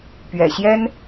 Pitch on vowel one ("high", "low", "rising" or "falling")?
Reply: low